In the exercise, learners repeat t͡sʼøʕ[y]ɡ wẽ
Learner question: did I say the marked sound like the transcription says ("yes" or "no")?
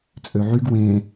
yes